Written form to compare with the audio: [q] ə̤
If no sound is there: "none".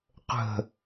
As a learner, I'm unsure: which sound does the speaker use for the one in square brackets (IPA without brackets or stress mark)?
q